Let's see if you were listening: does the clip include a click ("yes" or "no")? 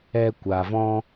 no